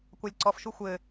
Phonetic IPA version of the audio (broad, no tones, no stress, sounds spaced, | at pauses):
kʷ a lʲ ǀ ɔ f ʃ u xʷ ɘ